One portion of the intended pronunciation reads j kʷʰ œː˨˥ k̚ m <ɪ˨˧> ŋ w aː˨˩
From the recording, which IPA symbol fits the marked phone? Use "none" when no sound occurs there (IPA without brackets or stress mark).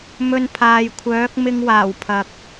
ɪ˧